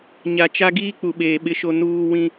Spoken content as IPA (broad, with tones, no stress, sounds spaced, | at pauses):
ɲ a˨ t͡ʃ a˦ ɡ iː˦ k͡p u˨ ɓ eː˨ ɓ ɪ˦ ʃ o˦ n uː˦ w ĩ˦